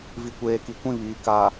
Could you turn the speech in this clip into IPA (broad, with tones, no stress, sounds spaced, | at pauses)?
v i˨ kʷ eː˨ k i˨ kʷ ĩ˦˨ β iː˨ k a˨